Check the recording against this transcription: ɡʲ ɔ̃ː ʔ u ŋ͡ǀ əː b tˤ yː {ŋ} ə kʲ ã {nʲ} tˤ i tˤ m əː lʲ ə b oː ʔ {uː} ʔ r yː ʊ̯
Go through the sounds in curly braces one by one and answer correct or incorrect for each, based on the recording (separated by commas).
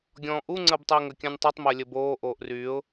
correct, correct, incorrect